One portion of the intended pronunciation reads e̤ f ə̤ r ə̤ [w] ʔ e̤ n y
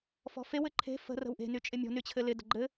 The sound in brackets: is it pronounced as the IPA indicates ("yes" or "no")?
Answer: yes